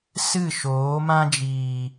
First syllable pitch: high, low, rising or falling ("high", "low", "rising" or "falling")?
falling